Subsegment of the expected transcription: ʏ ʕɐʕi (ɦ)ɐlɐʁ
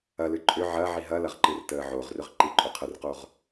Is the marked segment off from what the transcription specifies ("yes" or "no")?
no